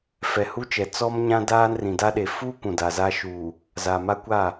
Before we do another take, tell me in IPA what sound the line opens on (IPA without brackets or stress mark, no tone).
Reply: f